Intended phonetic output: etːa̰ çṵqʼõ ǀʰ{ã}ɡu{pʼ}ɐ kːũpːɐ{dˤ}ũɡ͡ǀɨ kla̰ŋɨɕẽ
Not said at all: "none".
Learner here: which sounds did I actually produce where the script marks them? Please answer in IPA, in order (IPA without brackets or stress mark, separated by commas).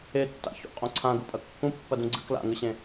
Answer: ã, pʼ, d